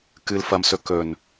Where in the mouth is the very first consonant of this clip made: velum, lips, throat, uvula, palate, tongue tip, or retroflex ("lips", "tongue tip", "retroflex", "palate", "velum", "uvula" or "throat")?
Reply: velum